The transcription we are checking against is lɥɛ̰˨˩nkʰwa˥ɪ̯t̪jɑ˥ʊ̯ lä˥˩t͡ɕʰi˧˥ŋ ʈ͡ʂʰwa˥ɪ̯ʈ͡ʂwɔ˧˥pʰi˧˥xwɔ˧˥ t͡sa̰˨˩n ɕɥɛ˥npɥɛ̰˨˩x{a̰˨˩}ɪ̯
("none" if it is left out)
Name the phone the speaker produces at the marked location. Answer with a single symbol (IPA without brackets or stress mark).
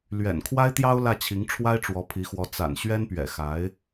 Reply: a˧˥